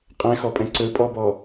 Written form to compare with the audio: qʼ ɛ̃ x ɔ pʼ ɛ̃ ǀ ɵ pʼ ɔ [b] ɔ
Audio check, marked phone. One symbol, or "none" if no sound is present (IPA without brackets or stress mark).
b